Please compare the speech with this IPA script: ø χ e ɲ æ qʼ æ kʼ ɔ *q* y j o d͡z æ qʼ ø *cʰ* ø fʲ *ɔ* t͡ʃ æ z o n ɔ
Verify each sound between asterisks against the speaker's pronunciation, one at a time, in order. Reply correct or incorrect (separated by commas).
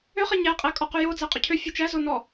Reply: correct, correct, incorrect